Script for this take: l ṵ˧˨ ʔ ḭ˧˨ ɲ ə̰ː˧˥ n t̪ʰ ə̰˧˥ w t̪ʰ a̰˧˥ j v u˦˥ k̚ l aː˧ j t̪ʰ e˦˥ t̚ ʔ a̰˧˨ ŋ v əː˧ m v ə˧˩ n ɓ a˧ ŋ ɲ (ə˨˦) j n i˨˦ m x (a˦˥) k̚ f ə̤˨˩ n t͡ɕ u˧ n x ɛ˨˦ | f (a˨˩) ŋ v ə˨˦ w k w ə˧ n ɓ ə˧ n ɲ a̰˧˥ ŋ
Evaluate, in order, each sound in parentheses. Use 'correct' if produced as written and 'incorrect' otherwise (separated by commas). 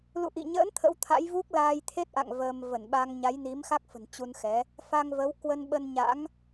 incorrect, correct, incorrect